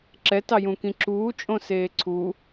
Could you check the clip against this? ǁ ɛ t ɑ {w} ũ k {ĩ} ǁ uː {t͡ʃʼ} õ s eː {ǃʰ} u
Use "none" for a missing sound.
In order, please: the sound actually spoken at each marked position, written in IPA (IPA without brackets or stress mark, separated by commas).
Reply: j, ĩ, t͡ʃʼ, ǀʰ